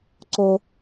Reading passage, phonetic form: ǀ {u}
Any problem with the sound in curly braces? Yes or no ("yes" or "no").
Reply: yes